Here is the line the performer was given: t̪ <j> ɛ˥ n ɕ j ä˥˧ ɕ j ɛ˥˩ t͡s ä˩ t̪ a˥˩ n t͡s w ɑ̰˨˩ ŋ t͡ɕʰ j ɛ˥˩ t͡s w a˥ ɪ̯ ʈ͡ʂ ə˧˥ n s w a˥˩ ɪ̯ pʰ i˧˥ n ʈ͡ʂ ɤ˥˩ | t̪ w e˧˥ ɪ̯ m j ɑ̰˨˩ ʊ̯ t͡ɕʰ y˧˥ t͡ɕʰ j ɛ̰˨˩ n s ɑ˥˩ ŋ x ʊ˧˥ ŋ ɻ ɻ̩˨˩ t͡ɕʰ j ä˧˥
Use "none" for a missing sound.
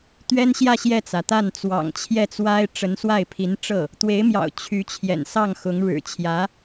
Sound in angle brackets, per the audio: ɥ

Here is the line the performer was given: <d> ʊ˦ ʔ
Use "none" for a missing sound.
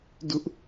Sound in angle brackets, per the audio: d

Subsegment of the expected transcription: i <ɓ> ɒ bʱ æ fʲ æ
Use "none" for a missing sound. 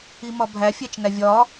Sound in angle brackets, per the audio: m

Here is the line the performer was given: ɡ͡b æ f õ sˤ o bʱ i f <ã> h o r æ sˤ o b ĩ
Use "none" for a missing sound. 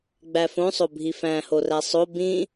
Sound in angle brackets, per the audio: æ̃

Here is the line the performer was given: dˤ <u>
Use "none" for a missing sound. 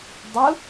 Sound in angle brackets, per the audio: u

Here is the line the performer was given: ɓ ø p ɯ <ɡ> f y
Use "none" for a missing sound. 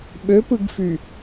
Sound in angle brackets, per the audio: ɡ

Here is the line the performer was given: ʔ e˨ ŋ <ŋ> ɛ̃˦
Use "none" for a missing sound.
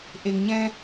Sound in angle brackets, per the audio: ɲ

